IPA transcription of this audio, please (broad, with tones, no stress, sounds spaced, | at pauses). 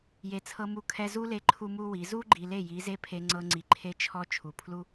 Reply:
j e˨ t͡sʰ ɤ˧ m u˧ kʰ ɛ˧ z u˦ l e˧ ǃʰ u˦ m u˦ w i˨˦ z u˦ ɡ͡ǃ i˨ l e˦˨ j i˨˦ z e˦ pʰ e˧ ŋ͡ǀ ɤ˧ ŋ͡ǀ i˨ ǃʰ e˧ t͡ʃʰ ɔ˧ t͡ʃʰ u˨ pʰ l u˦